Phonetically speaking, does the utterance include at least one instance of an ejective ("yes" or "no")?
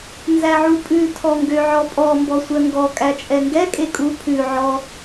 yes